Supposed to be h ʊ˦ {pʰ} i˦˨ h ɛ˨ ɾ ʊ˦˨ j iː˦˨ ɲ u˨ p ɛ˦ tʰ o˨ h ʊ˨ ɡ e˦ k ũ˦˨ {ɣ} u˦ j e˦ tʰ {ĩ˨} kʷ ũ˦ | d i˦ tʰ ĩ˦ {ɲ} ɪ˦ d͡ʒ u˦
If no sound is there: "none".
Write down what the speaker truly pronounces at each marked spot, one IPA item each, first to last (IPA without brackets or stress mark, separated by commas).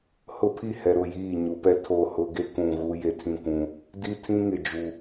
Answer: pʰ, ɣ, ĩ˦, ŋ